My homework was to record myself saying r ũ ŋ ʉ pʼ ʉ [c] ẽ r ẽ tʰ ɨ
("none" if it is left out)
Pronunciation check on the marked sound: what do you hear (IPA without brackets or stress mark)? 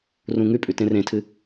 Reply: t